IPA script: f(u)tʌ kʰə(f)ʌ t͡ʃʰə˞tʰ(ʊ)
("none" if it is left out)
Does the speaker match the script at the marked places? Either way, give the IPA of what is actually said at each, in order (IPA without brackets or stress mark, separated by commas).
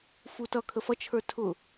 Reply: u, f, ʊ